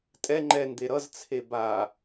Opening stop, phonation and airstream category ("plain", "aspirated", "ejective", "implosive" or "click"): ejective